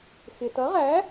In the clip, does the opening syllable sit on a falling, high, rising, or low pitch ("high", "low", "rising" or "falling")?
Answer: low